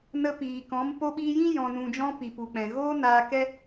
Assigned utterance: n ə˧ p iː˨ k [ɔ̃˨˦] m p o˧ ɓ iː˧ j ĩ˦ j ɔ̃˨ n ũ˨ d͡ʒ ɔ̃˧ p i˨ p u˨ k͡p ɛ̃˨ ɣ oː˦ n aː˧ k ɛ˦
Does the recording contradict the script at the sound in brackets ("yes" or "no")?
no